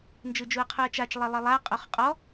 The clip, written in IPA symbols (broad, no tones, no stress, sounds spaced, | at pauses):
n d͡ʒ ɯ d͡ʒ u ɐ̯ qʰ u ɐ̯ t͡ʃ a t͡ʃ lˠ e lˠ e lˠ a qʼ o χ qʼ ɔ